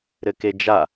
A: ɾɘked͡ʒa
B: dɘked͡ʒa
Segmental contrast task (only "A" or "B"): A